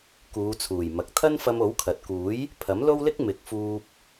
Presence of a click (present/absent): absent